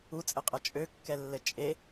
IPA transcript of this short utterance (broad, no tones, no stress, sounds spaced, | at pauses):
u t͡sʼ ɘ qʼ ɐ t͡ʃʼ ø kː ɛ lː ɘ t͡ʃʼ e